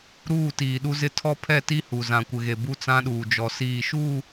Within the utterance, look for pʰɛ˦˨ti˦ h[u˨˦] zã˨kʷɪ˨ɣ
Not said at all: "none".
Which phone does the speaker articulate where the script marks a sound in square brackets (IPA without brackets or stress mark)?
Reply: u˨